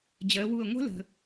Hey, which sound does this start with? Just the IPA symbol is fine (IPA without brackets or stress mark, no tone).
d͡ʑ